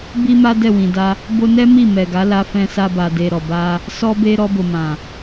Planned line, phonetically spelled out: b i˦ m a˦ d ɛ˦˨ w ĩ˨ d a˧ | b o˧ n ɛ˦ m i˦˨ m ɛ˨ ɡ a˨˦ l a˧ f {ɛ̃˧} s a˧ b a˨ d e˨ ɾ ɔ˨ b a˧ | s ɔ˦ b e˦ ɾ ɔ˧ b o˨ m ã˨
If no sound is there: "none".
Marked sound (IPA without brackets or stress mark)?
ɛ̃˧